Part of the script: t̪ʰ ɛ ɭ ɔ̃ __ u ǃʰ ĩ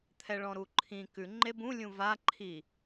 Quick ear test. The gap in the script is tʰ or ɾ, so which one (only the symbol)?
ɾ